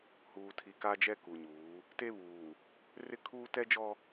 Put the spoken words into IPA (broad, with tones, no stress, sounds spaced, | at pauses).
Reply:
h uː˨ tʰ i˨ k a˦ d͡ʒ ɛ˦ k u˨ ɲ uː˨˦ | t e˦ β uː˨ | r ɪ˦ kʰ uː˦ t ɛ˦ d͡ʒ ɔ˦